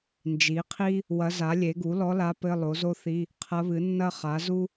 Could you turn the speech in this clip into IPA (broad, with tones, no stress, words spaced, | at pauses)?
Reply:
nd͡ʒi˩˥qʰi˥ | wɐ˧˥za˩˥lʲe˩˥ ɡu˩˥lɔ˧˥la˧˥ pɘ˧˥˧lˠo˩˥zo˥θi˧˥˧ | qʰɐ˧˥βɨ˩˥nːɐ˥ χa˩˥zu˥